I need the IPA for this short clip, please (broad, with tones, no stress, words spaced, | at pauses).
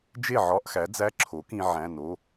d͡ʒe˥˩ʕɒ˧˥˧ʔxæ˩˥ d͡zæ˧˥˧ǁʰo˩˥kĩ˧ ʕæ̃˩˧˩no˩˧˩